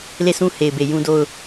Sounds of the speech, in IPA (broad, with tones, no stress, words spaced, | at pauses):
le˦˨sũ˦ he˨ɪ̯be˨ jũ˦do˦˨ʊ̯